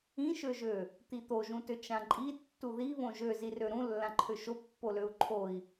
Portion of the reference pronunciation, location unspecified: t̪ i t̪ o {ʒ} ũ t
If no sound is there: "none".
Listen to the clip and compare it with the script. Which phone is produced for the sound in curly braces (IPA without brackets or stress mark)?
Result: ʒ